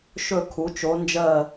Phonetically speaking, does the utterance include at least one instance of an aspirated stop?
yes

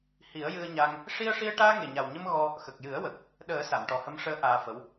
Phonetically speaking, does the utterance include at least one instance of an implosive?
yes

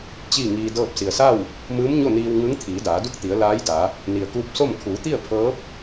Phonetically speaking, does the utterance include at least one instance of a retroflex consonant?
no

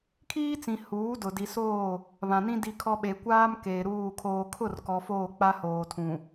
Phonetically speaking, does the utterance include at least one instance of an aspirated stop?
yes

